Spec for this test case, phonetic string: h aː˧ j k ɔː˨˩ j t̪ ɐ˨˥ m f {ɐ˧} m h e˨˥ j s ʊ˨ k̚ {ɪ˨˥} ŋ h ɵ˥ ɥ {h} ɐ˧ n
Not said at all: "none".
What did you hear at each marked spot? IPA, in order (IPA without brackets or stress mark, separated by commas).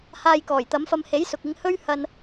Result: ɐ˧, ɪ˧, h